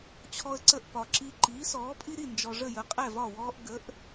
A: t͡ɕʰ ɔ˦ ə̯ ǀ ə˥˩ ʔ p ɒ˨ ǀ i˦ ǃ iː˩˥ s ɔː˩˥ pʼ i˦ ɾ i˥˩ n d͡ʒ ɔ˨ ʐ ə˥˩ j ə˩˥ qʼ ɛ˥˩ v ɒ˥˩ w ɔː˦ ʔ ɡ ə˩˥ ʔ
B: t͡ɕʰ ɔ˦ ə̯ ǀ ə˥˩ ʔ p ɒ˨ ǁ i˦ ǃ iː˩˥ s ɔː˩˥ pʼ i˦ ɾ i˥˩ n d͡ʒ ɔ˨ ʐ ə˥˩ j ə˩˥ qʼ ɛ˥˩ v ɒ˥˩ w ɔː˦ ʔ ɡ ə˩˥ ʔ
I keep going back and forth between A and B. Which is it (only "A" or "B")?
B